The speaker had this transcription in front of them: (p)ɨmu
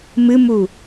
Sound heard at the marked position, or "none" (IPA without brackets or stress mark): m